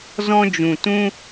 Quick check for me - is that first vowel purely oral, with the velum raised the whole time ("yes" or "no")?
no